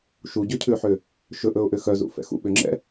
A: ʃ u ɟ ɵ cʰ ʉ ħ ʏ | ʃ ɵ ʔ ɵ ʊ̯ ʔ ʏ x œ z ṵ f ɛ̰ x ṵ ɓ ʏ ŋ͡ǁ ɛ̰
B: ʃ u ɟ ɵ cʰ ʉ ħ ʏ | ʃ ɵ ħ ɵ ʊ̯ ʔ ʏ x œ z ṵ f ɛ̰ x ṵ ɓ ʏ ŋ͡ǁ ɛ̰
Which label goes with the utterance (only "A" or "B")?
A